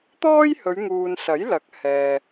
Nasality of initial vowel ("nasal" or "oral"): oral